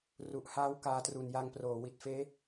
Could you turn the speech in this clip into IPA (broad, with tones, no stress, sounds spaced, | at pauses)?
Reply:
r u˨˩ ʔ h aː˦˥ w k aː˧ t r u˨˩ n j a˧ ŋ p r oː˩˦ w i˨˩ t̚ f eː˦˥